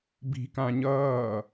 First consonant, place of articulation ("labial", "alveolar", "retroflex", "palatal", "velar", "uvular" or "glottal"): labial